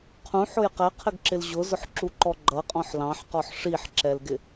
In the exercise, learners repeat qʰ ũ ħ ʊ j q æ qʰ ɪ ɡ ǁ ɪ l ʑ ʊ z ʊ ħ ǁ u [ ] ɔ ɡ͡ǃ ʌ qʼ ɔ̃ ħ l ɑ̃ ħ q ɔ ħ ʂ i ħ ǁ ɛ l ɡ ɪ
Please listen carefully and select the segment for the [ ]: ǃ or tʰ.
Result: ǃ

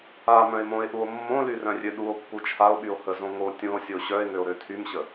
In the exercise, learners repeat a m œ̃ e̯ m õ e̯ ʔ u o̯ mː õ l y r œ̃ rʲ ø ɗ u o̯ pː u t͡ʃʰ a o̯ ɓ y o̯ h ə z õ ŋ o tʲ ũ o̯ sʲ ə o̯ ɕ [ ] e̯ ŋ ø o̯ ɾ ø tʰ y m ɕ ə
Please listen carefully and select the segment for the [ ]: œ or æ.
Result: œ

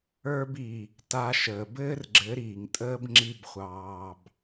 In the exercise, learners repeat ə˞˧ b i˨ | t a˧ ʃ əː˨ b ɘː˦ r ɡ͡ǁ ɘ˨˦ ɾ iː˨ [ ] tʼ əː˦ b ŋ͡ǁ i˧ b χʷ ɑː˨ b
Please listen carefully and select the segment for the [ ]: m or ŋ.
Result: ŋ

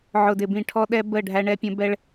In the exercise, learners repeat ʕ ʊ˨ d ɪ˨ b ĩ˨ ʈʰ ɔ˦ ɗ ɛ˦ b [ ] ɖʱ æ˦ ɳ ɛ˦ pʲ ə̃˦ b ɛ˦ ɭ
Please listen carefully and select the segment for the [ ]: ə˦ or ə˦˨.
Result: ə˦˨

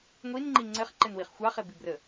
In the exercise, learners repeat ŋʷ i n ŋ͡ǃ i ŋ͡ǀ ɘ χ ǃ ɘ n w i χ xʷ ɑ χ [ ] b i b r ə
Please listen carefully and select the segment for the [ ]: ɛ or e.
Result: e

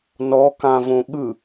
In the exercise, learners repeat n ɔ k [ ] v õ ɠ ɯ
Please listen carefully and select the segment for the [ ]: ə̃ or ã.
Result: ã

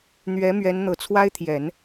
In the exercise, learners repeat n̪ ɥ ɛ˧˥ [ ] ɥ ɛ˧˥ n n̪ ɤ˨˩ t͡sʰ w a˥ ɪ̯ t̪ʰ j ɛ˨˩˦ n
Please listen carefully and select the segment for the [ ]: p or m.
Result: m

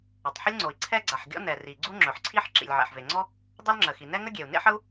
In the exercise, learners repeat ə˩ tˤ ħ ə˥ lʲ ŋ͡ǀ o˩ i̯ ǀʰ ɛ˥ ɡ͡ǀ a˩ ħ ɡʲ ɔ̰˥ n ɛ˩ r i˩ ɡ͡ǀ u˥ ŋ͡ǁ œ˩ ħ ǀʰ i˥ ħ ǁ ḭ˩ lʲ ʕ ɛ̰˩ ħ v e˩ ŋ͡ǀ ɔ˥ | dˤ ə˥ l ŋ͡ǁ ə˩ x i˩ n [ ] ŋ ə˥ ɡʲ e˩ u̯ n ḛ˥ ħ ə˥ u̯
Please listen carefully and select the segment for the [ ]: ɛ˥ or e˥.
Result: ɛ˥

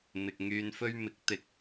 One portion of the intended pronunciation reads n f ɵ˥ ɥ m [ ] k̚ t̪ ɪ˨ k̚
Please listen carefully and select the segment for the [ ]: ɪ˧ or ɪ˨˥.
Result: ɪ˨˥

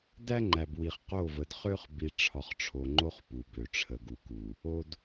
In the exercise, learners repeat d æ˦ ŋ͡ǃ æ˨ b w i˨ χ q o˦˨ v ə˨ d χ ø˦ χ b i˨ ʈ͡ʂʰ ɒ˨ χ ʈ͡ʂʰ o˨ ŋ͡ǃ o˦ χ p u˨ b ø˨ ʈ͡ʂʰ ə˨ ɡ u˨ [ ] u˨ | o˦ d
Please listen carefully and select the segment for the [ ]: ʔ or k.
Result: k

